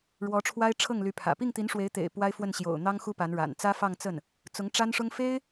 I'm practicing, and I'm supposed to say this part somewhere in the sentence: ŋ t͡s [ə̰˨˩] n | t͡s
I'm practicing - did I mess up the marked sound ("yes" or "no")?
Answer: yes